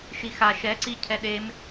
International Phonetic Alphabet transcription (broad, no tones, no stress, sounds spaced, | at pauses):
ʃ i x a ʃ ɛ ǀ i cʰ ɛ ɗ e m